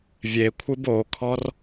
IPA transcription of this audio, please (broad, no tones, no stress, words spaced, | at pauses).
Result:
vʲekʷʰɨb okʰɔr